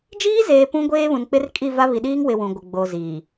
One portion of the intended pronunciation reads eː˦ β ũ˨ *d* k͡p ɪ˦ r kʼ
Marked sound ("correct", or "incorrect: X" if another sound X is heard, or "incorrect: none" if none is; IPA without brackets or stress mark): incorrect: n